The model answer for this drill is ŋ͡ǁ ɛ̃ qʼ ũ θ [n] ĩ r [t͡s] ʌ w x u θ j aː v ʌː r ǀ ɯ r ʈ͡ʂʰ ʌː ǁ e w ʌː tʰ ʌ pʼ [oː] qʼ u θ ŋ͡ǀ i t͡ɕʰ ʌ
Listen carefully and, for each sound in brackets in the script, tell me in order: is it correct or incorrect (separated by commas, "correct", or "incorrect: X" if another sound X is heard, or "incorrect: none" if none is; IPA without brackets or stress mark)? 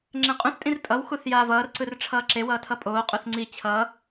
incorrect: tʼ, incorrect: tʼ, correct